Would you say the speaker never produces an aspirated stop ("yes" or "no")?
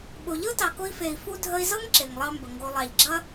yes